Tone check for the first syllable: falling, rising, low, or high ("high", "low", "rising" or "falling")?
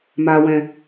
low